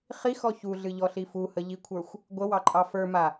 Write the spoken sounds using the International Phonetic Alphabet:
χ i x ɔ ç u ɮ ɨ ʎ ɔ ɬ i f u h ə ʎ i kʷʰ ə˞ xʷ | ɡʷ ə w ɑ ǃʼ ɑ f ə˞ m a

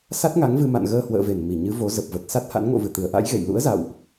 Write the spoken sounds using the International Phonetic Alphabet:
s a˦˥ t̚ ŋ a˨˦ ŋ v ɨ˧ m a̰˧˨ n ɣ əː˧ h w ə̰ː˧˨ v e˧˩ n m i˧˩ ɲ ɨ˨˦ v o˨˦ z ə˨˩ p̚ v ə˨˩ t̚ s a˦˥ t̚ h a̰˧˥ n ŋ o̰˧˨ v ɨ˧˩ t̪ ɨ˧˩ ə̯ ʔ a̰˧˥ j ɣ ḛ˧˨ j l ṵ˧˥ ə̯ z a̰˧˨ w ʔ

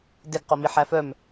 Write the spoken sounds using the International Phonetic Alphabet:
d e ɡ q o m i ħ æ f œ m

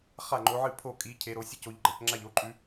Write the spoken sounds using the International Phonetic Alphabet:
χ a˥˩ ŋ͡ǃ o˨˦ ʕ ɨ˥˩ pʰ o˥˩ kʼ i˨˦ cʰ e˨˦ ɾ o˨˦ sʲ ɨ˥˩ c o˨˦ ʎ ɡ͡ǃ ɐ˨˦ c ŋ͡ǁ a˥˩ ʎ o˥˩ ǃʼ ʉ˨˦

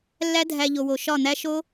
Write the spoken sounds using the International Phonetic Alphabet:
lː æ˦ dʱ æ˧ ʎ o˨ w o˨ ʃ ɒ˦˨ n̪ æ˦ ʃ o˦

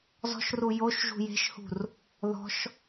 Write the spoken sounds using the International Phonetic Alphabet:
z ɔ̤ ʃ r u j o ʃ ʒ ṳ j e̤ ʃ h ṳ r | ð ɔ̤ ʃ

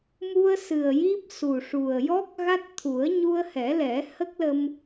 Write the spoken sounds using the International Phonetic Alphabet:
m u˧ ə̯ s ɨ˨˩ ə̯ j i˦˥ p̚ s u˨˩ ʂ u˨˩ ə̯ j ɔ˦˥ k̚ ɣ a˦˥ t̚ t̪ʰ u˨˩˦ ə̯ ɲ u˧ ə̯ h ɛ˨˩˦ l ɛ˨˩˦ h ə˦˥ k̚ l ə˧ m

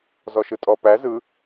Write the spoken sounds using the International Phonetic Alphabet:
z ɔ ʃ ɯ tʼ ɔ p æ z ɯ

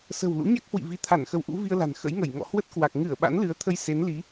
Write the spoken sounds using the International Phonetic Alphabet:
s ə̤˨˩ w l ṵ˧˥ ɲ a˦˥ k̚ h w ḭ˧˨ v i˨˦ t̪ʰ a˧˩ n x ə˨˦ w ʔ ṵ˧˥ v i˧ ə̯ l a̤˨˩ n x ə̰˧˥ j ŋ ə˧˩ j ŋ ɔ̰˧˨ h w ə˦˥ t̚ k w a˨˩ k̚ ŋ ɨ˧˩ ə̯ ɓ a̰˧˥ n l ɨ˨˦ ə̯ t̪ʰ ə˧ j s e˨˦ n l i˨˦

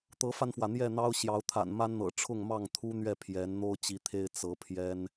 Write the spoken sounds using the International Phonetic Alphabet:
t̪ ɤ˨˦ f a˧ n f w ä˩ n̪ j ɛ˥˨ n̪ ɑ˦ ʊ̯ ɕ j ɑ˨˦ ʊ̯ t̪ʰ a̰˨˩ n m a˦ n n̪ ɤ̰˨˩ ʈ͡ʂʰ ʊ˥˨ ŋ m ɑ˥˨ ŋ t̪ʰ u˦ n̪ ɥ ɛ˥˨ pʰ j ɛ˨˦ n n̪ o˦ ʊ̯ t͡ɕ i˨˦ t̪ʰ e˦ ɪ̯ t͡s ɤ˨˦ pʰ j ɛ˦ n

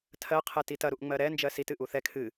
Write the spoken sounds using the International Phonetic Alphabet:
tʰ ɜ qʰ ɛ t i t ɐ ɾ u ʔ ŋ͡m ɜ ɾ ɛ n d͡ʒ ɜ s i t ɨ ʔ u θ ɛ kʰ ɨ

